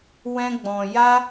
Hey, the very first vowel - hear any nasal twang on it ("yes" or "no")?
yes